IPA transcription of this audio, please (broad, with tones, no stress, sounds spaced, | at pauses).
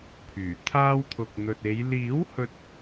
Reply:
pʰ yː˨˩ t̪ʰ aː˥ w t̪ʰ ʊ˨ k̚ n̪ ɵ˨ t̚ e˨˧ j l iː˨˥ w h ɵ˧ t̚